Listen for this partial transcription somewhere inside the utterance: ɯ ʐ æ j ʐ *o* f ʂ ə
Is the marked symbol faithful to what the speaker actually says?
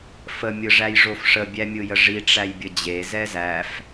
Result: yes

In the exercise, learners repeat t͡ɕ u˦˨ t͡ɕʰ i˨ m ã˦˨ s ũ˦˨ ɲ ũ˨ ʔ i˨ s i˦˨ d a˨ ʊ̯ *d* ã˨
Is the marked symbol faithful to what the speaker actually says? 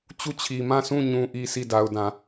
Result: yes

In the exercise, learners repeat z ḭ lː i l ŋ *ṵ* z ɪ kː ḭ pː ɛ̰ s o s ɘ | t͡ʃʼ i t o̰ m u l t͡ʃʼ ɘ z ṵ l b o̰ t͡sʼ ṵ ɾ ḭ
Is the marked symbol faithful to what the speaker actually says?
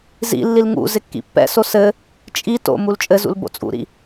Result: yes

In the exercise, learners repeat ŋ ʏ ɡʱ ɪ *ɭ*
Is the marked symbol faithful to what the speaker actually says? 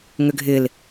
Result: no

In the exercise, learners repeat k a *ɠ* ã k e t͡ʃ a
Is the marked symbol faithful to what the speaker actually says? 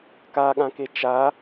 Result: yes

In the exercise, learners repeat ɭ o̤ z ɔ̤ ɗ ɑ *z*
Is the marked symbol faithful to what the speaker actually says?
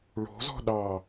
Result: no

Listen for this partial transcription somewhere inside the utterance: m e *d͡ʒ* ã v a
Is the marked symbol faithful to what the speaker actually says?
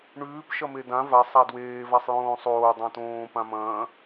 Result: no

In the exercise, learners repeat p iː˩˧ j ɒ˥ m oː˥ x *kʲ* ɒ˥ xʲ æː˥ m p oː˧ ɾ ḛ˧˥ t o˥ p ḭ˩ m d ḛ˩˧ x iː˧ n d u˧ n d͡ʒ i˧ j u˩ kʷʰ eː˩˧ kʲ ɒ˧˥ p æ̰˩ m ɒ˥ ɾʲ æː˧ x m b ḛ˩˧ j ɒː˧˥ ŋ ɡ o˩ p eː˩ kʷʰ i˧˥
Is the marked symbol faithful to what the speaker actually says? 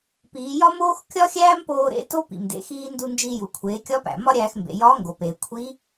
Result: yes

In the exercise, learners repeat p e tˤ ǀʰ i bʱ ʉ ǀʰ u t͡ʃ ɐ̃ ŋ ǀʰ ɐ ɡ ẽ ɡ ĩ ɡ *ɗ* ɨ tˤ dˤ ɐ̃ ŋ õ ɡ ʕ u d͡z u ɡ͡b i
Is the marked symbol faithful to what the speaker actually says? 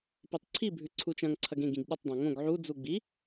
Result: yes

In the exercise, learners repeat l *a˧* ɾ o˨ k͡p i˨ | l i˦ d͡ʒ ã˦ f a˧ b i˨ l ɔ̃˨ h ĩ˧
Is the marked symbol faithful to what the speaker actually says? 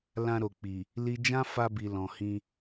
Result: no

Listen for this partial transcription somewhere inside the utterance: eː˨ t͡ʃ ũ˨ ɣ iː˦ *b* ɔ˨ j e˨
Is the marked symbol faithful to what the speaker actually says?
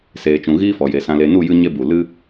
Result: no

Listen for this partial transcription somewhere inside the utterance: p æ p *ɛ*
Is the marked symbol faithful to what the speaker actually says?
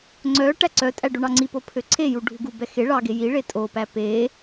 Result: no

